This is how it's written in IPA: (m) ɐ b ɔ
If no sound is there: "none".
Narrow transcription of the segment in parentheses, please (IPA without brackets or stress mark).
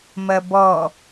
m